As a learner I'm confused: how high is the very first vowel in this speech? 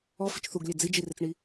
mid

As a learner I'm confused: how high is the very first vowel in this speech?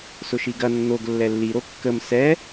high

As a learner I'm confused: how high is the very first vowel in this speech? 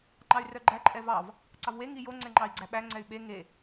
low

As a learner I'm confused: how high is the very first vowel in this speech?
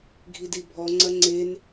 high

